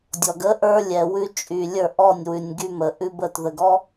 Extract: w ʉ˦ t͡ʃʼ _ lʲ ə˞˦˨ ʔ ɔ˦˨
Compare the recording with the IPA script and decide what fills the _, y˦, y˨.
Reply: y˨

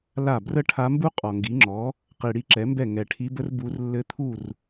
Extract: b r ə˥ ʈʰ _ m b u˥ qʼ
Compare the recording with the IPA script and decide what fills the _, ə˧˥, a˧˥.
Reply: a˧˥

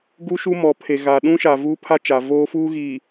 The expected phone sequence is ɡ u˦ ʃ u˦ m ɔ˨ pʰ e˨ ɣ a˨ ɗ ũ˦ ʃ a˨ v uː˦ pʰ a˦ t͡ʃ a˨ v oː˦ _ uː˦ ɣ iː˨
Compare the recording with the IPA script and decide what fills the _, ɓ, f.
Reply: f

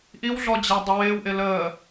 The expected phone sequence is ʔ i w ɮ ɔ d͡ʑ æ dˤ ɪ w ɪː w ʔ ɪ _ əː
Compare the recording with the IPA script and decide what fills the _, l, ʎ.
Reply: l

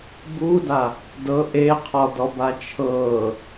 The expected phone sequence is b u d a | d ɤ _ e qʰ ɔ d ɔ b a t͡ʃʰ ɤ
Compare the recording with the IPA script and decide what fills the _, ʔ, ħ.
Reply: ʔ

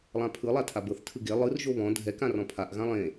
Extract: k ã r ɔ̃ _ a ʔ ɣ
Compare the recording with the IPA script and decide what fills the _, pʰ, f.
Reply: pʰ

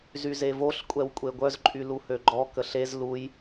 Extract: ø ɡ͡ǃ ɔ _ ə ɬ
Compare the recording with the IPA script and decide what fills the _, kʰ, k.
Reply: k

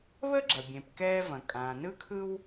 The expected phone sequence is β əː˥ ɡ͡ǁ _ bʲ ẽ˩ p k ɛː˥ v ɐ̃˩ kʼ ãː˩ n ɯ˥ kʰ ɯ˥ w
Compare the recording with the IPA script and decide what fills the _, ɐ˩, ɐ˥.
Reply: ɐ˩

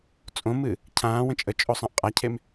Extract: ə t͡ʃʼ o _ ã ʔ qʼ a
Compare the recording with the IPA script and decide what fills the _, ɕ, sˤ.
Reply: sˤ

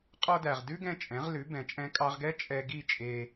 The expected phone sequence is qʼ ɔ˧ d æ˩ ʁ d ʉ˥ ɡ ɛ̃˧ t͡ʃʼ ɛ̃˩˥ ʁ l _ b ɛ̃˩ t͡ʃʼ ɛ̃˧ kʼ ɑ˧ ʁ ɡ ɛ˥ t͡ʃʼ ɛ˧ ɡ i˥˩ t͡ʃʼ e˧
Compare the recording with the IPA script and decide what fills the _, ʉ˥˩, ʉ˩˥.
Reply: ʉ˩˥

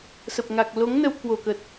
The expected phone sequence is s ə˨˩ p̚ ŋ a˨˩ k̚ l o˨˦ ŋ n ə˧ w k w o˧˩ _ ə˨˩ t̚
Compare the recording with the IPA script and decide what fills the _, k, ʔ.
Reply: k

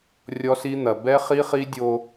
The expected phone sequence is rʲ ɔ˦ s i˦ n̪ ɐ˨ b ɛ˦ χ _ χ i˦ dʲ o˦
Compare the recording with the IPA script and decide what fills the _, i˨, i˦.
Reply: i˦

